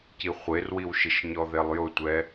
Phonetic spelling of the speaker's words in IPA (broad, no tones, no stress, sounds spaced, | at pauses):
c i χʷ e r w i w ʃ ɪ ʃ ɲ ɔ ð e lˠ j ʊ tʷ ɛ